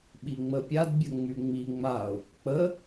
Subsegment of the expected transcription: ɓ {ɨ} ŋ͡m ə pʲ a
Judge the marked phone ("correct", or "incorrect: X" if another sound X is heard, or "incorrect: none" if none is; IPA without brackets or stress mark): incorrect: i